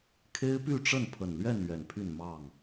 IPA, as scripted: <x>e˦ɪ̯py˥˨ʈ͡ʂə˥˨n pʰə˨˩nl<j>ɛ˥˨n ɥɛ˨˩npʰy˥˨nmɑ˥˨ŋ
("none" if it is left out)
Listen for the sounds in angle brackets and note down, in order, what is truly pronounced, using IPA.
kʰ, ɥ

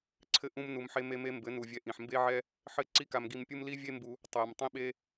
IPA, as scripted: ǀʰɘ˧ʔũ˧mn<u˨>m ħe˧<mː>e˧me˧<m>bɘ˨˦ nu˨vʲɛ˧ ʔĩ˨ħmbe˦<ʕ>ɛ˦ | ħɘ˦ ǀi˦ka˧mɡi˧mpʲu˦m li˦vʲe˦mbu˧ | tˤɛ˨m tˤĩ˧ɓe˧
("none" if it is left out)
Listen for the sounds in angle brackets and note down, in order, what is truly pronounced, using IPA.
u˨, m, m, ʕ

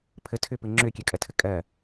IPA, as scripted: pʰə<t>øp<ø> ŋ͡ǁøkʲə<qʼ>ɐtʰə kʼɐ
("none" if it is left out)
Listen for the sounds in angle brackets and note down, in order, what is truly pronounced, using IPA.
tʰ, ɘ, kʼ

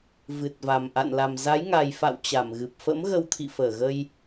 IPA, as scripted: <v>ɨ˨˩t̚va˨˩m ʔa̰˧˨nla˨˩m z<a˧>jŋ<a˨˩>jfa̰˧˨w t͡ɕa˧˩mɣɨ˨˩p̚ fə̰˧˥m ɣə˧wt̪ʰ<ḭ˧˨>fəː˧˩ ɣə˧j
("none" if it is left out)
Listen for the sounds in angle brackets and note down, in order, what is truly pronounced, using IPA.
v, a˨˦, a˨˩, ḭ˧˨

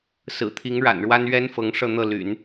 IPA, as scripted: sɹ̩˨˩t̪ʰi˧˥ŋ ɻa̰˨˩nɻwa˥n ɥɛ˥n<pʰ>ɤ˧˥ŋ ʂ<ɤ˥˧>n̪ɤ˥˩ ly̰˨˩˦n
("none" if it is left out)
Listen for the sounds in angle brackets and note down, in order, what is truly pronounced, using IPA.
f, ɤ˥˧

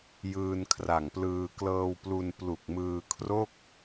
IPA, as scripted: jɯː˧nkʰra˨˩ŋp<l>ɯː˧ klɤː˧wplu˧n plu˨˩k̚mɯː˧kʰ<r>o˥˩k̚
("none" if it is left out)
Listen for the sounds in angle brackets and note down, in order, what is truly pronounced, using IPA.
l, r

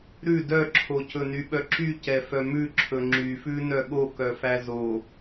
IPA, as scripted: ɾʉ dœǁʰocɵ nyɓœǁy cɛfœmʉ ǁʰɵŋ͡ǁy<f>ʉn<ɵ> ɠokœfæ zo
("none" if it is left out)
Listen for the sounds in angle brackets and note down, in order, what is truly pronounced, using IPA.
f, œ

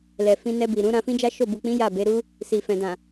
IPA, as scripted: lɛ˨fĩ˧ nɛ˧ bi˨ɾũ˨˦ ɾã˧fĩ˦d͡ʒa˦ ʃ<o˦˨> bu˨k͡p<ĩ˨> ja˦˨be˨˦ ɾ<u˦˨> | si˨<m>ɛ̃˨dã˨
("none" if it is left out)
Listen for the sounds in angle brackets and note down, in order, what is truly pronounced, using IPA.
o˦˨, ĩ˨˦, u˦, f

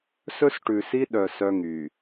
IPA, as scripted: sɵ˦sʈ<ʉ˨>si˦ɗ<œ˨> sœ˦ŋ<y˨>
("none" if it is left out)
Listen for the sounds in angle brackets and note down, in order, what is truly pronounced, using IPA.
ʉ˨, œ˨, y˨

